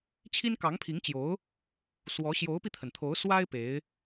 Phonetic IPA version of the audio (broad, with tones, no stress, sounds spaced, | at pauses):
t͡ɕʰ i˥ n k ɑ˧˥ ŋ pʰ i˧˥ ŋ t͡ɕ j o˧˥ ʊ̯ | s w ɔ˧˥ ɕ j o˧˥ ʊ̯ p i˧ t̪ʰ ə˩ n t̪ʰ o˧˥ ʊ̯ s w a˥ ɪ̯ p e˧˥ ɪ̯